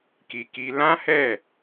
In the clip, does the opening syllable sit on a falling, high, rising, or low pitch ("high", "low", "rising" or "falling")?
low